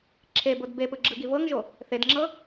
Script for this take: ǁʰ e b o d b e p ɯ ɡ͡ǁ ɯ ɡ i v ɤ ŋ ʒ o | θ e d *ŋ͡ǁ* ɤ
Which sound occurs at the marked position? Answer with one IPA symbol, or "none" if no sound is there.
ŋ͡ǁ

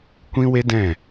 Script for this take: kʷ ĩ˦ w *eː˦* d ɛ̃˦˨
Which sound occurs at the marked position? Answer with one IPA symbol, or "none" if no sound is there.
e˦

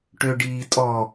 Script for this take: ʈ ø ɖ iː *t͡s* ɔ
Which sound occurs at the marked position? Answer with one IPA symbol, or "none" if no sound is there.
tʼ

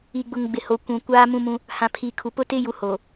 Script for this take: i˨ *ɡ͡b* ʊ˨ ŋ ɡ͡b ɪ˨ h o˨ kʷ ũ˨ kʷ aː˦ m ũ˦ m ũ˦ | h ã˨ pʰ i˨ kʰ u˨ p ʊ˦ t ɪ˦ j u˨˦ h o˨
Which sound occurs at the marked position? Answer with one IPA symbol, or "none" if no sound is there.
ɡ͡b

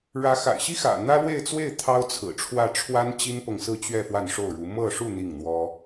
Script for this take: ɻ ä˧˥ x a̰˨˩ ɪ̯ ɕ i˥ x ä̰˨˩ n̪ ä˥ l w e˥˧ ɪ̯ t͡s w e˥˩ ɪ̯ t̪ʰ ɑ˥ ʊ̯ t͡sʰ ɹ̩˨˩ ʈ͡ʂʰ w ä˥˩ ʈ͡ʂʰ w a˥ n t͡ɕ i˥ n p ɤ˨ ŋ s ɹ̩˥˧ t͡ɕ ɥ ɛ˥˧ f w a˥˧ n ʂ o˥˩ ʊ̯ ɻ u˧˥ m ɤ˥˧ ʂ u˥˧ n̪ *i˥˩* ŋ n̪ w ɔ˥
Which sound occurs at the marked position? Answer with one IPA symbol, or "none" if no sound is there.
i˥˩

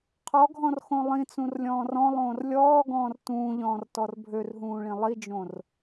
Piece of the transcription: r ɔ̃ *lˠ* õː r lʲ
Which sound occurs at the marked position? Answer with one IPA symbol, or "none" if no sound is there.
lˠ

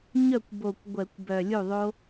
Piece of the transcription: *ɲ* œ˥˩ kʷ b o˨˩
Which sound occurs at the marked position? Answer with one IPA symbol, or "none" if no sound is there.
ɲ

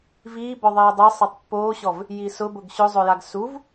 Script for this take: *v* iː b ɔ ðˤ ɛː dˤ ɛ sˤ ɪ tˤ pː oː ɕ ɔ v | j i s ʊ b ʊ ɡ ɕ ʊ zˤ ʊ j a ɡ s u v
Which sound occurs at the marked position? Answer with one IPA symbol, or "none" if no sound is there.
v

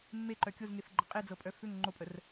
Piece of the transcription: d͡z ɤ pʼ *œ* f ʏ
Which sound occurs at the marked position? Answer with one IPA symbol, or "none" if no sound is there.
œ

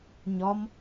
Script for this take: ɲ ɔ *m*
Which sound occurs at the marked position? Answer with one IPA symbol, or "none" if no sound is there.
m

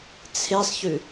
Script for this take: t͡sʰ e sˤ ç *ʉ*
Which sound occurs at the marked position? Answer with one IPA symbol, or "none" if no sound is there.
ʉ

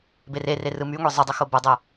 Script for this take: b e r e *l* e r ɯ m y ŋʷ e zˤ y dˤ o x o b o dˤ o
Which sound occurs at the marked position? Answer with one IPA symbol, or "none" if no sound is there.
r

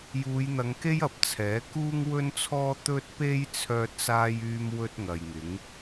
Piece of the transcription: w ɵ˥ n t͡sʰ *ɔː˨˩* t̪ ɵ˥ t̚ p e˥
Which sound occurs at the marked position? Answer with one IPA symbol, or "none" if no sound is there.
ɔː˥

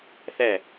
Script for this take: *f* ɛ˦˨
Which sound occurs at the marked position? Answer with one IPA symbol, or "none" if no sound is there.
θ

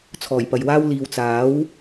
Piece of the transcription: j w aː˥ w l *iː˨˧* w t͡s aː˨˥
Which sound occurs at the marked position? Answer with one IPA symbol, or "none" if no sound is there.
iː˨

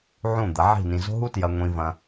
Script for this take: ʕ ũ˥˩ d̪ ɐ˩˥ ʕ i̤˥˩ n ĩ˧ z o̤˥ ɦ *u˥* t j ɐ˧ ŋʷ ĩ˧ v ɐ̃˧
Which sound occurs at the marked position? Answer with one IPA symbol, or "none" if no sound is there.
u˥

